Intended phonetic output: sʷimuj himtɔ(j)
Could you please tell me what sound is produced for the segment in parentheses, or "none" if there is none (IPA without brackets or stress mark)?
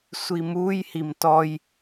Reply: j